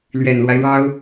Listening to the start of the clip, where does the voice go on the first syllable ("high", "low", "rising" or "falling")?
low